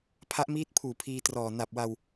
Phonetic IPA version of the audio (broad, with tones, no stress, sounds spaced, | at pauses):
pʰ a˦˥ ʔ m iː˦˥ t̚ pʰ uː˨˩ pʰ iː˧ t r ɔː˨˩ n a˨˩ p̚ w a˧ w